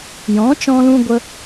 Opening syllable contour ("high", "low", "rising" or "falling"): rising